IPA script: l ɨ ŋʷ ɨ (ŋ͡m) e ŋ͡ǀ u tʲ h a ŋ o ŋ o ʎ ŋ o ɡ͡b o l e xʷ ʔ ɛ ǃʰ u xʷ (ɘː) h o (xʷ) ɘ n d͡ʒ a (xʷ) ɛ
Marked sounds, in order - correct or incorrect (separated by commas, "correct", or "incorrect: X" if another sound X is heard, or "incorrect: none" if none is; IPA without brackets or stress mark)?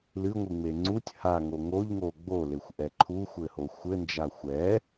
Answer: correct, incorrect: ɘ, correct, correct